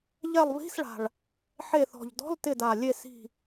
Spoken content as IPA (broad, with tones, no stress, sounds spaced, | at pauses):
ʎ ɛ˦˨ lˠ β i̤˧˥˧ s ɭ a̤˨˩ ɭ | ħ e˦˨ θ ɔ̤˨˩ ʎ d ɔ̤˧˥˧ l t ɪ˦˨ d a˨˩ lʲ e˦˨ s i̤˦˨